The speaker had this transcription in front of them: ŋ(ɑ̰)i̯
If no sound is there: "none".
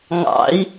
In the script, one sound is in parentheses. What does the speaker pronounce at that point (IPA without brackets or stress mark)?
ɑ̰